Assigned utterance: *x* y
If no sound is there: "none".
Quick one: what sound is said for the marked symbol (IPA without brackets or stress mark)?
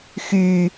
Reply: x